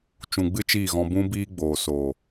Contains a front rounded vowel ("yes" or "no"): no